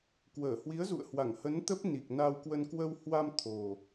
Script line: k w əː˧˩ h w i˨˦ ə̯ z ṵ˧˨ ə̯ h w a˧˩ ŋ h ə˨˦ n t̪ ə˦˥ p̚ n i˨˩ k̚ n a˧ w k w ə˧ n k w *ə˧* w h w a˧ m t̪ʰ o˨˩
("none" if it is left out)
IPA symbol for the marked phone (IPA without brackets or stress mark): ə˧